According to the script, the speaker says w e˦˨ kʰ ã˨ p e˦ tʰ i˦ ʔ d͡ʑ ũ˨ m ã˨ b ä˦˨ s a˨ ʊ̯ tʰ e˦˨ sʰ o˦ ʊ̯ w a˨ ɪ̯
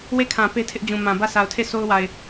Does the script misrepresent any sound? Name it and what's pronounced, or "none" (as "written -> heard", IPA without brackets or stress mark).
i˦ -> ɪ˦